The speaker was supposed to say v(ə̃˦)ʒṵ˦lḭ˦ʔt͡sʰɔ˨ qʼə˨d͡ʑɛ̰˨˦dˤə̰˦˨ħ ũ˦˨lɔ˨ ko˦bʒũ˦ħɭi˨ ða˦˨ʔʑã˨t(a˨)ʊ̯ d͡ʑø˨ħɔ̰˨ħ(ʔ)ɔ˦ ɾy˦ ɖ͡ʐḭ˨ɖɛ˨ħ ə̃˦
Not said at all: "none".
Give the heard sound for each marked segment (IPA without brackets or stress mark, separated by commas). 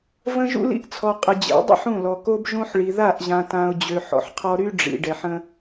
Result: ə̃˦, ã˨, qʰ